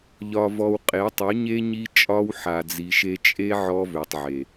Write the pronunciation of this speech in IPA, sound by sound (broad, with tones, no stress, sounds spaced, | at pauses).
ʎ ɒ˨ v ɔ˨ w qʼ e˨˦ tˤ u˨˦ ɲ e˦ ɲ i˦ t͡ʃʼ ɒ˦ w ħ a˨ d͡z i˨ ʃ e˦ t͡ʃʼ e˦ ʕ ɔ˦ v ø˨ tˤ ʕ e˨